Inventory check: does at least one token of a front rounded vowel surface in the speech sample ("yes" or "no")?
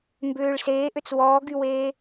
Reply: yes